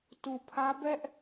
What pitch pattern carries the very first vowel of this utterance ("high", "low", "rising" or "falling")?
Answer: low